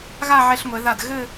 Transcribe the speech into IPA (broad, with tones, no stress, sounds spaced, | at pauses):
ɣ a˥˧ ʕ ɛ˧ ɬ ŋʷ ɛ˩˧ ð a˧˩ d ɣ ɘ˥˧